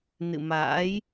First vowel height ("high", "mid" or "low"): high